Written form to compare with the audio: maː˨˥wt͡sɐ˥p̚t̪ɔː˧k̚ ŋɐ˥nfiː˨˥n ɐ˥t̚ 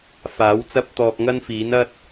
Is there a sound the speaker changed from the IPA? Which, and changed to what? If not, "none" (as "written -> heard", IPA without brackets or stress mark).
m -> f